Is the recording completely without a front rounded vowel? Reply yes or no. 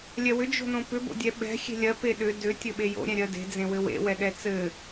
no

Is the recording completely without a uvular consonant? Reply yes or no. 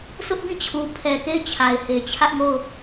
yes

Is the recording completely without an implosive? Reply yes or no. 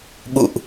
no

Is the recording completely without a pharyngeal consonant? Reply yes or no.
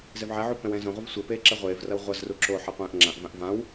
no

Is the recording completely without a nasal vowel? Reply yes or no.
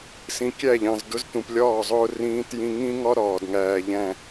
no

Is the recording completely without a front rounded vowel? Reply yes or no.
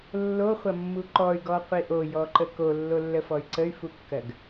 no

